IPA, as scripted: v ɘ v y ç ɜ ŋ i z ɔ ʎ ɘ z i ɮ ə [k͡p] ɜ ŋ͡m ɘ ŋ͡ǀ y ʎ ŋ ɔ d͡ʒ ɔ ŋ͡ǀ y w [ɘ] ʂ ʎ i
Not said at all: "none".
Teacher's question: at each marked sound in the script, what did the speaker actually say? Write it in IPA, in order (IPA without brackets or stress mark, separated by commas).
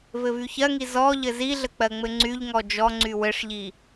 k͡p, ɘ